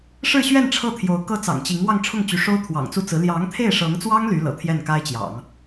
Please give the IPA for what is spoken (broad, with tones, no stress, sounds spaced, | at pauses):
ʂ ɻ̩˥˧ ɕ ɥ ɛ˥˧ n ʈ͡ʂʰ ɤ˥˩ t̪ʰ j o˧˥ ʊ̯ k ɤ˥ t͡s ɑ̰˨˩ ŋ t͡ɕ i˧˥ ŋ w ɑ˥˧ ŋ ʈ͡ʂʰ ʊ˥˩ ŋ t͡ɕ y˧˥ ʂ o˥ ʊ̯ t̪ʰ w ɑ̰˨˩ ŋ t͡s u˥˩ t͡s ɹ̩˧˥ l j ɑ˧˥ ŋ t̪ʰ e˥˩ ɪ̯ ʂ ɤ˧˥ ŋ t͡s w ɑ˥ ŋ l y˧˥ l ɤ̰˨˩ t̪ʰ j ɛ˥˩ n k a˥ ɪ̯ t͡ɕ j ɑ̰˨˩˦ ŋ